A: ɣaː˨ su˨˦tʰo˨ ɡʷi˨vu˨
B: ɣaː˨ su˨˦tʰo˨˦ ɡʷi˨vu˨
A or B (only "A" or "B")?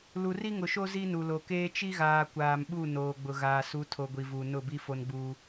A